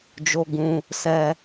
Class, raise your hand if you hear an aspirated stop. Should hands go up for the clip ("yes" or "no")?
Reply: no